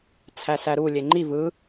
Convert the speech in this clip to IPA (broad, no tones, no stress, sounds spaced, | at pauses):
t͡sʰ æ s æ ɾ u lʲ e ŋ͡ǃ i v ɯ